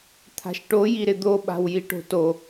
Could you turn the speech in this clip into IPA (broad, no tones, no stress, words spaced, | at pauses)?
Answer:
t̪ʰa̤ʃʈojiɾɪ d̪oɓa̤w jiʈo̤to